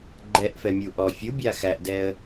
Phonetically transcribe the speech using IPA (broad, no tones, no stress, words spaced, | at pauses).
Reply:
ɡ͡ǃɛʔfɛmʲu ʔɔ fʲubʲa xæʔdɛə̯